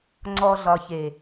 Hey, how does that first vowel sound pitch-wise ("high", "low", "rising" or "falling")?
low